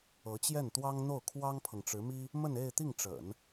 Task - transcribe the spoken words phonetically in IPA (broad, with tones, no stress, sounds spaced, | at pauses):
ɤ˧˥ t͡ɕ j ɛ˥˩ n t̪ w ɑ˥ ŋ n̪ o˥˩ ʊ̯ kʰ w ɑ˥ ŋ pʰ ɤ˨ ŋ ʈ͡ʂ ɻ̩˧˥ m i˥ | m ə˥˧ n e˥˧ ɪ̯ t̪ i˥˩ ŋ ʈ͡ʂ ə̰˨˩˦ n